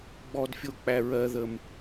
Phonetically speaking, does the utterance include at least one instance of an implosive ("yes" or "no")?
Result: no